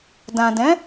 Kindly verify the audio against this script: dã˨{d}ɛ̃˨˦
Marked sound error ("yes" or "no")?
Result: no